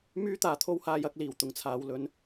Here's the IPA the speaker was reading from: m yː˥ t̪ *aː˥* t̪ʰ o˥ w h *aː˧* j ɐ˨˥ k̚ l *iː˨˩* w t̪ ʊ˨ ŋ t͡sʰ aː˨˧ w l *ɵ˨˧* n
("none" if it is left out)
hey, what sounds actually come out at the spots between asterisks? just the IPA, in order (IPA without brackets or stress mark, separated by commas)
aː˨˧, aː˧, iː˨˩, ɵ˨˧